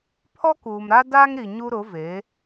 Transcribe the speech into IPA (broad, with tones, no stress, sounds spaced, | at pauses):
pʰ ɔ˦ k uː˨ m ɾ a˦ d aː˦ ŋ ɾ i˨ ɲ u˦ ɾ ʊ˨˦ v e˨˦